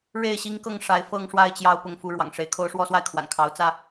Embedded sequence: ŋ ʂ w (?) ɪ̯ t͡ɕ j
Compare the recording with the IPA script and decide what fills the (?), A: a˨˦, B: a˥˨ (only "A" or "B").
B